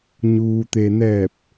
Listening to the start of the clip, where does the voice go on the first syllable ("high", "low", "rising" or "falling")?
low